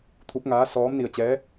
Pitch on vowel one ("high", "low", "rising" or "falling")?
rising